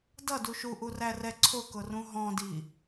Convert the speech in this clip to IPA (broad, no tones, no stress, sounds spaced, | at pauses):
d ʌ d u ʃ u ʔ u r æ r ɛ ǀʰ ʊ k ʊ r ũ ɦ ɔ̃ d i